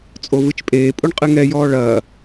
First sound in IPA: t͡sʼ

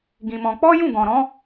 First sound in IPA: ɡ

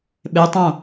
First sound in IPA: ɓ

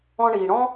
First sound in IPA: ɔ̃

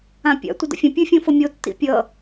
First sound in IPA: ã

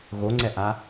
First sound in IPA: ɣ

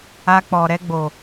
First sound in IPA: a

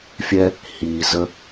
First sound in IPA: fʲ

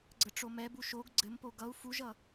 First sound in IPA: ɡ͡ǀ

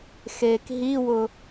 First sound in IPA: x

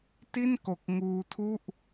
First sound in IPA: t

